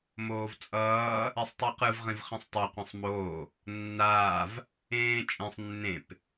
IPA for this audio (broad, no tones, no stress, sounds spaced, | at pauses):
m oː v t͡sʼ ʌː | ɛ sˤ tˤ ɯ q ɯ v ʁ ĩ v χ ĩ sˤ tˤ o qʷ ẽ sˤ m oː | nː aː v | ẽː t͡ʃʼ ẽ sˤ nː ẽ p